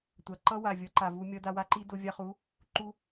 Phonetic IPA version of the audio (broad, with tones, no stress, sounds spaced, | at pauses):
tʷ a˨ ǃ ʌ˦ w a˨ vʲ ʌ˨˦ ǃ a˨ v u˧ mʲ ʌ˧ d a˧ w a˦ ǃ i˦ d o˧ vʲ a˧ χ u˨˦ | ǃ u˧